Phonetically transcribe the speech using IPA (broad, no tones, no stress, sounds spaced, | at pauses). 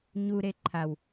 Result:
ɲ u ɾ e ǃʰ a w